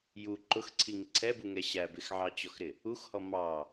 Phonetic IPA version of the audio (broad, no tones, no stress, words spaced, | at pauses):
ju ǃʊxǀʰiŋ ǀʰɛbuŋɛ ɕæ bɪxʕɑt͡ɕɔxɾɪ | uxhɔ mɑ